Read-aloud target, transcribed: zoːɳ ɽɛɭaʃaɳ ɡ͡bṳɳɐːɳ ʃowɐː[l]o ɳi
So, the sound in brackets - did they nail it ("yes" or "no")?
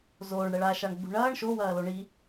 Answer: yes